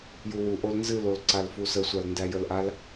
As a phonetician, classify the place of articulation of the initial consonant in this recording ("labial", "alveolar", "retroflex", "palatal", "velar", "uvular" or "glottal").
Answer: palatal